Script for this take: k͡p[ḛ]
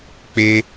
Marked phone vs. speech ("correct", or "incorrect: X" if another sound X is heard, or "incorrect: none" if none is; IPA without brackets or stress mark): incorrect: e